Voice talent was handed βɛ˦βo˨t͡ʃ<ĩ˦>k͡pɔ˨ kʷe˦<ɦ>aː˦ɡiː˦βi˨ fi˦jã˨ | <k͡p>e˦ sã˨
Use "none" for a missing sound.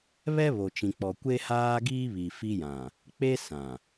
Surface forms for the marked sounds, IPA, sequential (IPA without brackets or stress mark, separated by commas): ĩ˨, h, k͡p